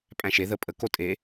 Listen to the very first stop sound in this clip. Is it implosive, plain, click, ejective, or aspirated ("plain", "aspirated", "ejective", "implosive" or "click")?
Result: ejective